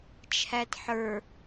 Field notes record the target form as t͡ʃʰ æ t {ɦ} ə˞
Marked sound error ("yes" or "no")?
yes